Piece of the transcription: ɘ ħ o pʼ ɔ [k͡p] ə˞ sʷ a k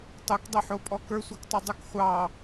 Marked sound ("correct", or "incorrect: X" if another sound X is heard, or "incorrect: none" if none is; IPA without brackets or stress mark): incorrect: k